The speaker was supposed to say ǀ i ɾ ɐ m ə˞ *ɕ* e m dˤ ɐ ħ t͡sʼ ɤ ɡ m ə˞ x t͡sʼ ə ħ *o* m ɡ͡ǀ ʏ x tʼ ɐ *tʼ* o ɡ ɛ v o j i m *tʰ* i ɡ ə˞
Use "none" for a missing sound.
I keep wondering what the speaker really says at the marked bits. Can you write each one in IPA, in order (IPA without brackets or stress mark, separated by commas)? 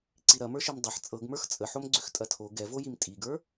ʃ, o, tʰ, tʼ